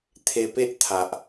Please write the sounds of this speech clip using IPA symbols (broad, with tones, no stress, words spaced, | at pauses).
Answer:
t̪ʰe˧pe˦ʔt̪ʰa˨ʔ